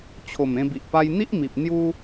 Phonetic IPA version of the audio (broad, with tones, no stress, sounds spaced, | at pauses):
t͡ɕʰ o˨˩ m ẽ˧ b i˨ ʔ p a˧ j n̪ i˦ ʔ m i˨ p̚ n̪ j u˦